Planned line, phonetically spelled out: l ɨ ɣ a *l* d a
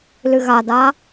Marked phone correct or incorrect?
incorrect